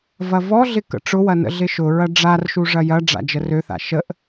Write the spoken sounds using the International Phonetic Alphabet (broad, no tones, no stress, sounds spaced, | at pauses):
v ɐ v ɔ ɮ ɪ k ə̰ ʈ͡ʂ ʊ w ɐ n ə̰ ɮ ɪ ʃ ʊ ɹ ɐ ɖ͡ʐ a r ʃ u ʐ ɐ j ɐ ɖ͡ʐ a̰ d͡ʒ ə r ø θ a̰ ʃ ə ʔ